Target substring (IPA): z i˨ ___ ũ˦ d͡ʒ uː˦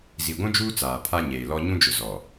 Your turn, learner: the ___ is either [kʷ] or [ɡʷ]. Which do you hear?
ɡʷ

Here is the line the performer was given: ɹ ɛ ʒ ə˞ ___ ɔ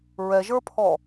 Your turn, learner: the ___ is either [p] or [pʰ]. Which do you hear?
pʰ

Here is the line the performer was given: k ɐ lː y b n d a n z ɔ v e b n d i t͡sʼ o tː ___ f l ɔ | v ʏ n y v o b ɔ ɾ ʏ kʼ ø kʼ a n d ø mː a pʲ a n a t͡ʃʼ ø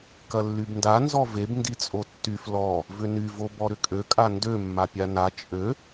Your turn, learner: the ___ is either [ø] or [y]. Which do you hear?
y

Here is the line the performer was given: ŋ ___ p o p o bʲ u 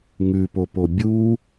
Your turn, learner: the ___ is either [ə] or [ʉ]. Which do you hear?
ʉ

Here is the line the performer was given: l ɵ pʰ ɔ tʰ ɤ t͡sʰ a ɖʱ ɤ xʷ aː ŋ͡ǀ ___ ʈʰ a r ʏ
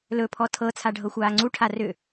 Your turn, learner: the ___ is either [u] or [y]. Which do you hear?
u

